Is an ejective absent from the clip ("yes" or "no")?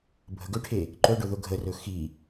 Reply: yes